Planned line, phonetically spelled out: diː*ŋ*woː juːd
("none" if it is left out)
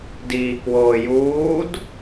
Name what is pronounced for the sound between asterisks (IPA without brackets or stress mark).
k